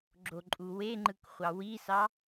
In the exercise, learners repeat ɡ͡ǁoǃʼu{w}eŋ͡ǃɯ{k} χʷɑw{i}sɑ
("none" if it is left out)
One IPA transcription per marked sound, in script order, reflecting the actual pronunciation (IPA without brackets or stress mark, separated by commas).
w, k, i